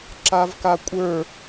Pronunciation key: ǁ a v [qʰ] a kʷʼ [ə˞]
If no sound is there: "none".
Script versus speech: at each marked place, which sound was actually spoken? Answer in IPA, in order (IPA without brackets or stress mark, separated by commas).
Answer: k, ə˞